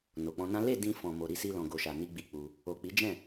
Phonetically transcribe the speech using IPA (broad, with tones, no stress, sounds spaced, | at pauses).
n o˨ k͡p ɔ̃˧ n ã˦ l e˦˨ d ĩ˧ f ɔ̃˨ m o˨ ɾ i˧ s i˧ l ɔ̃˨ ɡ o˨ ʃ a˨ n i˧ ɡ͡b i˧ k͡p u˧ | o˨ k͡p i˨˦ d͡ʒ ɛ̃˦˨